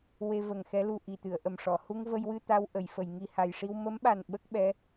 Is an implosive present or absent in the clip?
present